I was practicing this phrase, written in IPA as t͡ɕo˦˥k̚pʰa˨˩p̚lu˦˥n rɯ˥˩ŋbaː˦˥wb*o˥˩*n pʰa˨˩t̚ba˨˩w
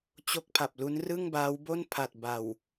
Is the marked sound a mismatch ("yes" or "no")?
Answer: no